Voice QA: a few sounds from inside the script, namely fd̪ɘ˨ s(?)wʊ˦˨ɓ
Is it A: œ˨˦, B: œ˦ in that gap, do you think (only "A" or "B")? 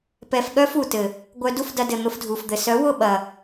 A